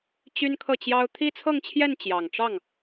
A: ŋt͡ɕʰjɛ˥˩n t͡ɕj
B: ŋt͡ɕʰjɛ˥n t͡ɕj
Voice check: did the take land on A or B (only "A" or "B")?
A